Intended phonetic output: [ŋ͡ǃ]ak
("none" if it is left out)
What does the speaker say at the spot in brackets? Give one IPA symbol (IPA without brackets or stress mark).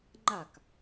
ŋ͡ǃ